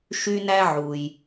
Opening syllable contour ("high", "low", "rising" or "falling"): high